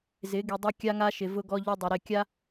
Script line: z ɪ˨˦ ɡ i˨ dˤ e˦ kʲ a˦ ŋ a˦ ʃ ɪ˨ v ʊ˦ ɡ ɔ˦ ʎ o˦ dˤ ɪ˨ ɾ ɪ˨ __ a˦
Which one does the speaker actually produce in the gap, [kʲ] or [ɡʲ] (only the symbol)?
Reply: kʲ